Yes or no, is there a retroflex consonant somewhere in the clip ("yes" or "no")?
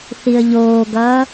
no